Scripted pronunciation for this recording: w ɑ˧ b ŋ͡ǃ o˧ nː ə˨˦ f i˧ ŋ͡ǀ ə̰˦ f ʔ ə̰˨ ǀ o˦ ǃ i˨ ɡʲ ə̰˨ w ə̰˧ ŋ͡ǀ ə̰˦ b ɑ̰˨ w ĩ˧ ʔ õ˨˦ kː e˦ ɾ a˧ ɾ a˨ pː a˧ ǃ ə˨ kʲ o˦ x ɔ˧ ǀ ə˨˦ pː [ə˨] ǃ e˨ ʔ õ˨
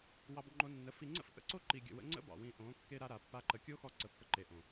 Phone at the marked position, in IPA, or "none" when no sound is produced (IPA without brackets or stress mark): ə˧